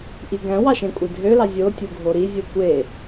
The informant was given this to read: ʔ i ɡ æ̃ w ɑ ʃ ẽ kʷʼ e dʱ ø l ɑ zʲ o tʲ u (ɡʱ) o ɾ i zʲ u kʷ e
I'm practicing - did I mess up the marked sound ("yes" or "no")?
no